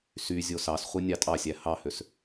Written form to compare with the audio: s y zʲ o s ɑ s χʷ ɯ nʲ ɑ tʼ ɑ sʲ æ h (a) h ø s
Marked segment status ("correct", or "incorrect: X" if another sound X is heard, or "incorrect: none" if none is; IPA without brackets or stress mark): incorrect: ɑ